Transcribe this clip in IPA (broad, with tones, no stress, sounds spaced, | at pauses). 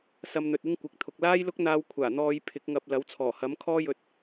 s ɐ˧ m n̪ ɵ˨ t̚ ɪ˥ ŋ kʷ ɪ˨ k̚ t̪ʰ ʊ˨ k̚ l aː˥ j l ʊ˥ k̚ n̪ aː˧ w kʷʰ aː˨˩ n̪ ɔː˨˧ j pʰ ɪ˨˥ k̚ ŋ ɐ˧ p̚ l ɐ˨˥ w t͡sʰ ɔː˨˩ h ɐ˨˥ m kʰ ɔː˥ j ɵ˧ t̚